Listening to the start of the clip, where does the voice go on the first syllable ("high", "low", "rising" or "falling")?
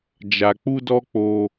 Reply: low